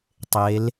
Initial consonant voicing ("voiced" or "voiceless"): voiceless